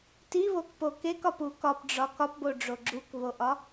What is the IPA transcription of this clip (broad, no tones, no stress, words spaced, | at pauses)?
tiβokpo kekɒpu kɒpɖ͡ʐɒ kɒpboɖ͡ʐo ɡ͡ǁukβoʔɒ